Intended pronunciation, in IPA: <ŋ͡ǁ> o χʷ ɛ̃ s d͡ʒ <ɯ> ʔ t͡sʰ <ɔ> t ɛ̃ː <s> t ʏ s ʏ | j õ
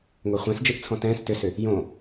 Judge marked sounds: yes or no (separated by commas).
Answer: no, yes, no, yes